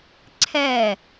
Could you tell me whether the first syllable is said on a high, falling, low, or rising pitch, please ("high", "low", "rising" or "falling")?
falling